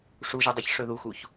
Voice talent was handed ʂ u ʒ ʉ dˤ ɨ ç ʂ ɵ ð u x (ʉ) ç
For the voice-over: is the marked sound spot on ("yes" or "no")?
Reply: no